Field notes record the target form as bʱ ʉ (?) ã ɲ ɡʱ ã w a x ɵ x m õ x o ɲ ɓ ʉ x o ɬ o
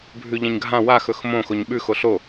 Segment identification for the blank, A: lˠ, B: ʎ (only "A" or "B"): B